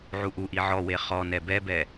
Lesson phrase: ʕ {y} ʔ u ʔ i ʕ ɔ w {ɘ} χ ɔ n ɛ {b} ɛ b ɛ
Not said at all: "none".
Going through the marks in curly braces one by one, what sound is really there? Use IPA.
u, e, b

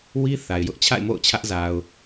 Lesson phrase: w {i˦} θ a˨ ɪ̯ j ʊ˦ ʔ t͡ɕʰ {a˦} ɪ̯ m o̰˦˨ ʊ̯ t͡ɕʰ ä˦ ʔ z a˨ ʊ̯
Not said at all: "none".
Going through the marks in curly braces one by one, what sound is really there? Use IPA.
i˦, a̰˦˨

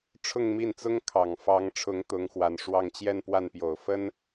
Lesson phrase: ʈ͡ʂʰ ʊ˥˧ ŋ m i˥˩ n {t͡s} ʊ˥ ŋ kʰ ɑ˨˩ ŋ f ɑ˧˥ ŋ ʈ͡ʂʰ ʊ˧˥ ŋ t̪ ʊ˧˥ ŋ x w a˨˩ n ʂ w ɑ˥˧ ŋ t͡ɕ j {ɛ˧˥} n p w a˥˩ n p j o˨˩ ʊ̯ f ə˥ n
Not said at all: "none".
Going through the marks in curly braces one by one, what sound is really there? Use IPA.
t͡s, ɛ˥˧

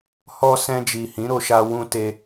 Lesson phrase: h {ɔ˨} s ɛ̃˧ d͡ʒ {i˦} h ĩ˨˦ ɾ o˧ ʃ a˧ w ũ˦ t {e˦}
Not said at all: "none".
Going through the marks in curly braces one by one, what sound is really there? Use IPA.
ɔ˧, i˨, e˦

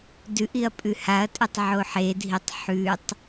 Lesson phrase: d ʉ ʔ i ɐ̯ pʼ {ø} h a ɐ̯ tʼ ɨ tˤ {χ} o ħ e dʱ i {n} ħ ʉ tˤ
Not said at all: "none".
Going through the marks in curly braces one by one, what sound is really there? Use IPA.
ʉ, ʕ, tˤ

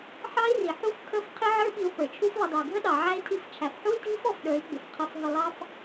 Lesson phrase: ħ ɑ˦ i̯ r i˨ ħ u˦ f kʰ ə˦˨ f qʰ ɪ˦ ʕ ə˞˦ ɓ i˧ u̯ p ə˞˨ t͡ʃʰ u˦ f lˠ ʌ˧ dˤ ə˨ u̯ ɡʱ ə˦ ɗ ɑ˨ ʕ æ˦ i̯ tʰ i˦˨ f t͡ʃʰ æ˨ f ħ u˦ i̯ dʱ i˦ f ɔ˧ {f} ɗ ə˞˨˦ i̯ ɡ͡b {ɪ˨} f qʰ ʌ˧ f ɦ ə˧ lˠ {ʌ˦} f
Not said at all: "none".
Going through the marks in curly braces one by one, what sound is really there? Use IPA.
f, ɪ˨, ɑ˦

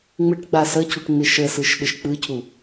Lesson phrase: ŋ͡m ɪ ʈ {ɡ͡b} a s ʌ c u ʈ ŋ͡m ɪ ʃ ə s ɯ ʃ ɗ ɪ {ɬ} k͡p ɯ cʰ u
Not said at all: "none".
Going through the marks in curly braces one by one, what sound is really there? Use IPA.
ɡ͡b, ʃ

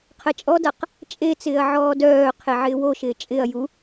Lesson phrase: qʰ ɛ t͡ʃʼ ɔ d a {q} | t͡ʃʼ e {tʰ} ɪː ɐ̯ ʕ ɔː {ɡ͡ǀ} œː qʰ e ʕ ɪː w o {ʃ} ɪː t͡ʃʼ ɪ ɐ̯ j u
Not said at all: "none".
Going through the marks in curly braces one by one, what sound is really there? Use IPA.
q, t͡s, d, ʃ

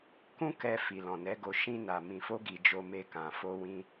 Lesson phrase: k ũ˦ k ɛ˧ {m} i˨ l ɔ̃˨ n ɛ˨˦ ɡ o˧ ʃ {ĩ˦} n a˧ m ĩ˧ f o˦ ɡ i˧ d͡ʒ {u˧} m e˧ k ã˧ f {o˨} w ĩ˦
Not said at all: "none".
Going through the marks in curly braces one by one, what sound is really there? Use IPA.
f, ĩ˦, o˧, o˦

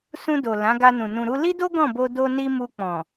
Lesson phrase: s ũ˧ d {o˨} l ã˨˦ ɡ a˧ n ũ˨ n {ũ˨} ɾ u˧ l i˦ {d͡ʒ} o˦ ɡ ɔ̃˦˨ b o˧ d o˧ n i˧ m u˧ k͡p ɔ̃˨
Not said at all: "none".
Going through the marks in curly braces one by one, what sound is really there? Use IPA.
o˨, ũ˨, d

